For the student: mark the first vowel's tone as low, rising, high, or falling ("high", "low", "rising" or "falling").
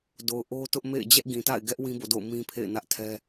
low